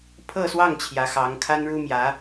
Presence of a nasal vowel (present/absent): absent